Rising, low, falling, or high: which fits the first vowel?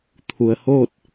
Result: low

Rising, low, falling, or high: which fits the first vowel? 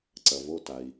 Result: low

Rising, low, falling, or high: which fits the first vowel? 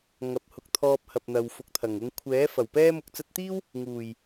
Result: rising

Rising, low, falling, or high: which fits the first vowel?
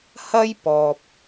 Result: high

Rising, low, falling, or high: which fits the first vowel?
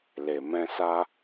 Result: low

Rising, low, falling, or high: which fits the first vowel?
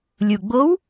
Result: low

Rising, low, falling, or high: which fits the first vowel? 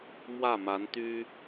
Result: falling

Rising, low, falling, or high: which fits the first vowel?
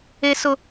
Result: high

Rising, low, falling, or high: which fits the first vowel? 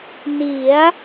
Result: rising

